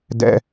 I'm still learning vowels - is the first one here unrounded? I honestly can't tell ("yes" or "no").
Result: yes